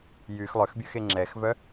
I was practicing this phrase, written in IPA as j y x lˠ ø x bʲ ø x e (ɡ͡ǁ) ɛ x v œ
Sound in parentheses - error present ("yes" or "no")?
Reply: yes